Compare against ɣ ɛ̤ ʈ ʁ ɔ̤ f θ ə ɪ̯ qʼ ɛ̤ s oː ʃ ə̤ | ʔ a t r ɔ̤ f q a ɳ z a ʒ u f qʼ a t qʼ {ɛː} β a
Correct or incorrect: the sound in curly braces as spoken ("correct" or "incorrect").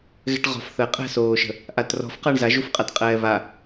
correct